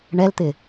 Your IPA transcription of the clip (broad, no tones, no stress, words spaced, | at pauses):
ɳɛlt̪ɪ